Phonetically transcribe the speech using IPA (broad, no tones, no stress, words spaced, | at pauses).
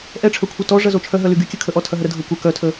ʔɛʈ͡ʂʰœkʷʰɐ tɔ ʐɐzot͡ʃʰœ ɦœlyɡykʲə kʰəʔɔtʰɐɦə ɾədʱokʷɐ kœtʰə